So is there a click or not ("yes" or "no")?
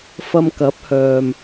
no